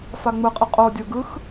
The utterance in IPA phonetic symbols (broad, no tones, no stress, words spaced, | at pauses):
faŋ͡mɯqʼɯ qʼodʲo ɡɯx